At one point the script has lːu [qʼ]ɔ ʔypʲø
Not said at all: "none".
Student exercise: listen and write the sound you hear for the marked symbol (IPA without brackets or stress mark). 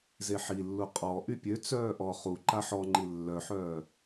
qʼ